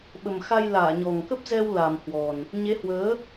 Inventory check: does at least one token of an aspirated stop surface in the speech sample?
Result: no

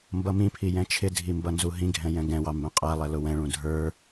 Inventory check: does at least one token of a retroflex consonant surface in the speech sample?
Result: yes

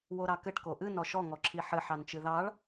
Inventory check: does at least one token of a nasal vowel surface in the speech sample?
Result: no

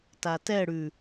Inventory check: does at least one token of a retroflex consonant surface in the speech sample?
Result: yes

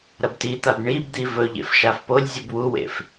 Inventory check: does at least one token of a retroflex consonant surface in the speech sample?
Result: yes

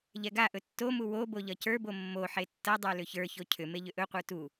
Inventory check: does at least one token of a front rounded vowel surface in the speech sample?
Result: yes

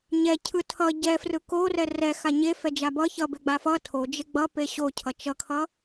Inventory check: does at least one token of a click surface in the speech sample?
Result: no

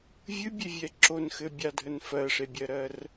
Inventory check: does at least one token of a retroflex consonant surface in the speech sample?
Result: yes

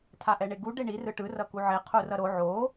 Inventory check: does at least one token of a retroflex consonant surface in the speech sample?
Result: yes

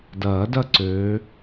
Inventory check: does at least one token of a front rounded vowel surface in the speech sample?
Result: yes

